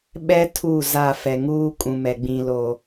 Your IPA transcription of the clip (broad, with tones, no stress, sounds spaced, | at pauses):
ɓ ɛ˦ tʰ u˦˨ z a˦˨ f ɛ˨ ŋ uː˦ kʼ ũ˨ m ɛ˨ ɡ͡b ĩ˨ l o˨